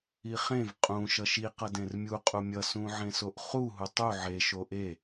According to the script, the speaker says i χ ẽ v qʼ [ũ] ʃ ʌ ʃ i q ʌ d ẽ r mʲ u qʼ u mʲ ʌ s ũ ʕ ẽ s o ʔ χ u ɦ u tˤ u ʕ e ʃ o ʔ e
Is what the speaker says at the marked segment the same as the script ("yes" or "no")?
yes